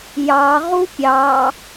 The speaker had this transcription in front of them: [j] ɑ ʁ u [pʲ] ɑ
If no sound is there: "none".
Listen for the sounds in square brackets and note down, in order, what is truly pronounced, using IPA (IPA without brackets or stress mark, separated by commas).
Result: j, pʲ